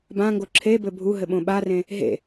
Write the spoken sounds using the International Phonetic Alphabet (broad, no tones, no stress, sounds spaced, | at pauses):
b ã ŋ ɡ o ǁʰ e b ɘ bʱ u ɦ ɘ ɓ õ ɓ a r ẽ | ɦ ḛ